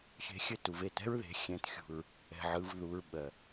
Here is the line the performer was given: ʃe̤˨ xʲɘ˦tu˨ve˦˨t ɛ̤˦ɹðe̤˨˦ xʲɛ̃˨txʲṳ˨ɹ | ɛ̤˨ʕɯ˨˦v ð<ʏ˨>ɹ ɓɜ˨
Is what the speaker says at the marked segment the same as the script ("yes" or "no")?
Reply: no